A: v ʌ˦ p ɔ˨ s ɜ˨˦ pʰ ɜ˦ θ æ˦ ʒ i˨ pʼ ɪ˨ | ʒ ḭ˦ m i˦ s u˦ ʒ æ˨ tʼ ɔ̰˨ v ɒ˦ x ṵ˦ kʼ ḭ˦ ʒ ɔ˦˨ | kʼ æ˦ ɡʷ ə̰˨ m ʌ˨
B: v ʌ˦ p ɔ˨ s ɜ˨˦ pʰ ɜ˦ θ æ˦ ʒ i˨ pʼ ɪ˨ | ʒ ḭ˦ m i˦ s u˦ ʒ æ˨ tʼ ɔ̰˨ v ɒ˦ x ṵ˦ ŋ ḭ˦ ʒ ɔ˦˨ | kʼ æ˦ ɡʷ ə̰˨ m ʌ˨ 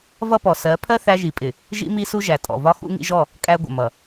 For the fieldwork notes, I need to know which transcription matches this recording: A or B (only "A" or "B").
B